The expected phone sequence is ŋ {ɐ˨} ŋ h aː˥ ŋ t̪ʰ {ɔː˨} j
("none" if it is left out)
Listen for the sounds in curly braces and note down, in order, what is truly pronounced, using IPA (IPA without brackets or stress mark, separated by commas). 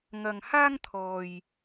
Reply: ɐ˨, ɔː˨